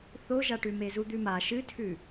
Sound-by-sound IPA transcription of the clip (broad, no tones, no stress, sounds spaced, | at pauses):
θ o ʒ a ʈ ʉ m e z u d̪ ʉ m a ʃ ɨ tʰ ʉ